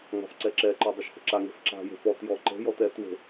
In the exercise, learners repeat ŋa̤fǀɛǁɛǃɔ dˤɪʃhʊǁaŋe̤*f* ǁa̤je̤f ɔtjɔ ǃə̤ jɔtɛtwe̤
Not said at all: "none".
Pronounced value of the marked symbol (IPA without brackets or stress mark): f